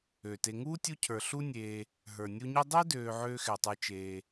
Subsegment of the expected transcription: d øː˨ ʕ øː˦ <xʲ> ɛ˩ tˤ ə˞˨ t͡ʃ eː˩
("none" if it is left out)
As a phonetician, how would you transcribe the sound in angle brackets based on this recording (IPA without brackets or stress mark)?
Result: x